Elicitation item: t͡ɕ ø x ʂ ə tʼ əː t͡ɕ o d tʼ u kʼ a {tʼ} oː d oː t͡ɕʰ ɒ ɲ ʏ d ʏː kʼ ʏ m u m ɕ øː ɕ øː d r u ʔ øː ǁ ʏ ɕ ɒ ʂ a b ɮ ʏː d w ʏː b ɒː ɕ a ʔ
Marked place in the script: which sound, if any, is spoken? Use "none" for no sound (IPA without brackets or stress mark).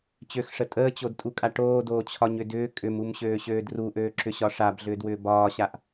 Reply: ʈ